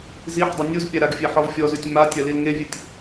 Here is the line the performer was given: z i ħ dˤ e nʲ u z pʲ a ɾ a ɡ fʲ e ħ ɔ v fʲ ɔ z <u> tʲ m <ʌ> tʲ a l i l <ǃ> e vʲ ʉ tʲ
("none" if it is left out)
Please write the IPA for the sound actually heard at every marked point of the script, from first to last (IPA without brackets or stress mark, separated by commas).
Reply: ʉ, a, ŋ